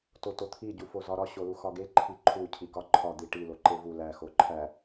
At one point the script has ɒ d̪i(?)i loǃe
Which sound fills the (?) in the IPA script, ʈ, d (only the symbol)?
ʈ